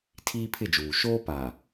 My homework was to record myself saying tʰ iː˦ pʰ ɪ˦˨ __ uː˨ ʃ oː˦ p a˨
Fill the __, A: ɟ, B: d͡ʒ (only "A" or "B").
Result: B